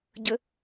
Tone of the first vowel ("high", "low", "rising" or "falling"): high